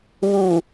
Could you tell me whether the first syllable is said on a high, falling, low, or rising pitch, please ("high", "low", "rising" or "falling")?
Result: low